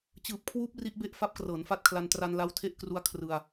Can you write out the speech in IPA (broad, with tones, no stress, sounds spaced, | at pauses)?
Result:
t͡ɕ ɯː˨˩ p̚ kʰ w uː˦˥ p̚ r i˦˥ ʔ b e˥˩ ʔ f a˦˥ p̚ k r ɤː˩˦ n f a˦˥ t̚ kʰ l a˧ n t r a˧ n l a˦˥ w tʰ e˥˩ ʔ k r u˦˥ a̯ kʰ r ɯ˧ a̯